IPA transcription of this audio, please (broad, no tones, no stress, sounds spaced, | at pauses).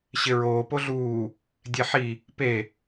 ɕ ɪ ɹ oː p o ɮ uː | dʲ e ħ i | p e